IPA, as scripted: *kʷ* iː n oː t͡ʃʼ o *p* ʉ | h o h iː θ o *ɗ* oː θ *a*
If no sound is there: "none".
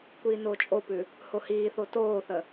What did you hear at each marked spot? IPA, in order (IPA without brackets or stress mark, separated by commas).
kʷ, p, t, ə